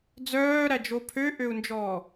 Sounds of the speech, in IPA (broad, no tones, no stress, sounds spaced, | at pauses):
d͡z œː ɾ æ d͡ʒ o pʰ ø ʔ ø u̯ n d͡ʒ ɔː